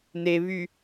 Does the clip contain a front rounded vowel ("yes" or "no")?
yes